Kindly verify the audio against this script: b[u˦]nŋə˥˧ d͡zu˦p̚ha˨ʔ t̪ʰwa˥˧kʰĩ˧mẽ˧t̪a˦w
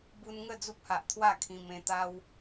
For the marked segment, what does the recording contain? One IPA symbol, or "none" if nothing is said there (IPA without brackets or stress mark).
u˧